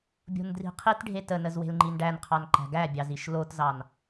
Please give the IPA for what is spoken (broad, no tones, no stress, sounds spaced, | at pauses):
bʲ o̤ n d r i̤ qʰ i t ɖʱ e t ə n ə z w e̤ l ŋ͡ǃ i n ɖ æ n qʰ ɑ n ǃ æ̤ ɡ æ bʲ ɑ z i ʃ l o t z ɑ n